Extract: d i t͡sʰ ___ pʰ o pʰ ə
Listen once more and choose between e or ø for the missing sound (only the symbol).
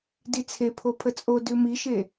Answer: e